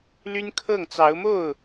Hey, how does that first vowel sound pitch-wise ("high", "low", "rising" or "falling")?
high